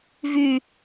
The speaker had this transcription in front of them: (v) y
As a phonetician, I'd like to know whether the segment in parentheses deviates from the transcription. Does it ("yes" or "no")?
no